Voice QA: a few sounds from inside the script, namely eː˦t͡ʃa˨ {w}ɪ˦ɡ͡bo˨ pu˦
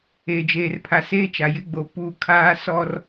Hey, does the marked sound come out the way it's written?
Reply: no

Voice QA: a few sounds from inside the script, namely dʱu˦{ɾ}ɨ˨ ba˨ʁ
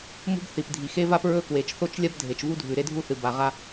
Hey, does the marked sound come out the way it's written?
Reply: no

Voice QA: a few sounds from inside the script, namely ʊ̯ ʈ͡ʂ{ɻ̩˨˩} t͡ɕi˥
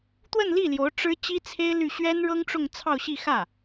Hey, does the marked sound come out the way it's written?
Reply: no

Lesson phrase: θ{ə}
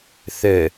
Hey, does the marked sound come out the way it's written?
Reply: yes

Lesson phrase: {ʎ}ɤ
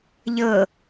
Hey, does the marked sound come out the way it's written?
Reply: yes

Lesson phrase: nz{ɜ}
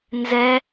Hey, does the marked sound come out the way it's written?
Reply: no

